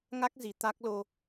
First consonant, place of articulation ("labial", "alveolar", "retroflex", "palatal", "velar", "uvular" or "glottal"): velar